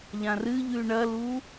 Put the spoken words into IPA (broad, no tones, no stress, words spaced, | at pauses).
ʎãrɨʎʉ ɳɐlu